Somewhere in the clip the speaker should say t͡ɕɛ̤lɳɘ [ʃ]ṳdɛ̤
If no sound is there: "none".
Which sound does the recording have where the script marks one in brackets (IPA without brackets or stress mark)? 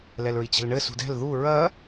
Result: s